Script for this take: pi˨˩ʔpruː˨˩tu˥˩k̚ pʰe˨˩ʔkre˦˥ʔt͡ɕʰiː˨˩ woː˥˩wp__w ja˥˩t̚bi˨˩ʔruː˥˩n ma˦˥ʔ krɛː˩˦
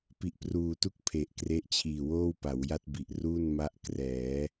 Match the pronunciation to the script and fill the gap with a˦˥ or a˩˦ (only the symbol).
a˩˦